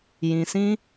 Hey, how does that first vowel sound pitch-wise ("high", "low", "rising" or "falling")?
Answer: low